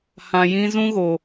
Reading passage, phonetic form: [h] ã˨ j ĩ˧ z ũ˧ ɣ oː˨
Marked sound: correct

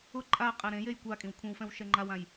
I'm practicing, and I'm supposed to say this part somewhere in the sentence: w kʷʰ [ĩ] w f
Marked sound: correct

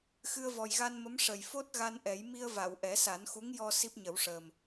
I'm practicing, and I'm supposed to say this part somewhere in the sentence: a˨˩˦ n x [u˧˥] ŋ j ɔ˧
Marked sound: correct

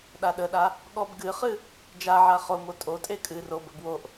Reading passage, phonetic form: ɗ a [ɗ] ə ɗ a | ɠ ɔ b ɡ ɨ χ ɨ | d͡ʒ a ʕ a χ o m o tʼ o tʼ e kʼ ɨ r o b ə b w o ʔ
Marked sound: correct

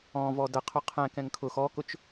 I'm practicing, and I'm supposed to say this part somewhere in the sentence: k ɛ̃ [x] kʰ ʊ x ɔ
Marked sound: incorrect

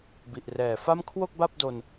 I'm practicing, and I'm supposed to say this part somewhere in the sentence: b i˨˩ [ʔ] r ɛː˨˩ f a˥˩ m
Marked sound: correct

